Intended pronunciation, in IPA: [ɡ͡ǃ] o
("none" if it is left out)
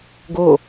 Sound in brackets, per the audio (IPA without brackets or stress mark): ɡ